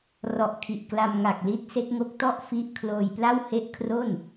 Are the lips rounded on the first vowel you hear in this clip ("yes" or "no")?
yes